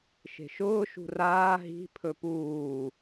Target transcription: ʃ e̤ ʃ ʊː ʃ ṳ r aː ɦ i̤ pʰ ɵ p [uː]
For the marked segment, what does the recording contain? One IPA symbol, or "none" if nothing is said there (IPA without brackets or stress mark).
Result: uː